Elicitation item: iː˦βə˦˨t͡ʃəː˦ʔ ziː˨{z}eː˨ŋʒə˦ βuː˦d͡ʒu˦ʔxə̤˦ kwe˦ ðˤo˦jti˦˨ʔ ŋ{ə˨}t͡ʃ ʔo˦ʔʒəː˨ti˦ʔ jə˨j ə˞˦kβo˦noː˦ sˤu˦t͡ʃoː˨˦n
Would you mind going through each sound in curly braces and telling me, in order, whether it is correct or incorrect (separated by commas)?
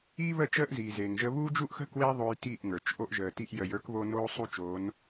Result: correct, incorrect